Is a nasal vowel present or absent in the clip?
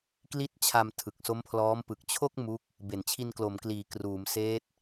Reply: absent